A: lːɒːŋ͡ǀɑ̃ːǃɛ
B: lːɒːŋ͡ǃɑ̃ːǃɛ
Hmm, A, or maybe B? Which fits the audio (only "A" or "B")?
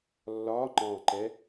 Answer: B